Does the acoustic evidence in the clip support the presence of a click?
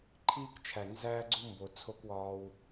yes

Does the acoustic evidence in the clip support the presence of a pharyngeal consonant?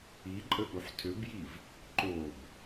yes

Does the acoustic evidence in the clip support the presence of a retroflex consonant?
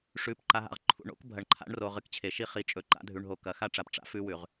yes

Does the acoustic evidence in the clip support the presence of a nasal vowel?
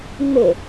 no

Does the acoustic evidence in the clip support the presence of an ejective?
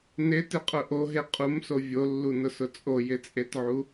yes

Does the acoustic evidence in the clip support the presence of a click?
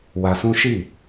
no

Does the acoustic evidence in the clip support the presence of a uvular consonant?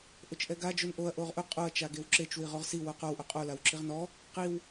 yes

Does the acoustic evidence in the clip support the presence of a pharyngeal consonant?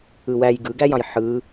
yes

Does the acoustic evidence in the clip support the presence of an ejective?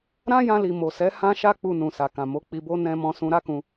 no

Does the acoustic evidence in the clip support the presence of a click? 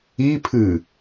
no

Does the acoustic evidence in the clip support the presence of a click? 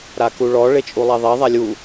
no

